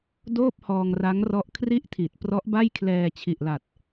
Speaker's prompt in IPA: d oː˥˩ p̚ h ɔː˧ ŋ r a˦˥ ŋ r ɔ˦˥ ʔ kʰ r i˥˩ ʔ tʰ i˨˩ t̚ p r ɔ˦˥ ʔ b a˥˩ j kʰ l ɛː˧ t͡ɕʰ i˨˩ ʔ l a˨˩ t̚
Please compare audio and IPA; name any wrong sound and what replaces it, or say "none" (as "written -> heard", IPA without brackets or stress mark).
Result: none